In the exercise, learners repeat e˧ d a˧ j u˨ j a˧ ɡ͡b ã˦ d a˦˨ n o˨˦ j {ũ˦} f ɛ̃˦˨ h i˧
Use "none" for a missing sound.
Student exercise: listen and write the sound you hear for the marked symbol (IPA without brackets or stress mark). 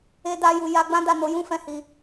ũ˦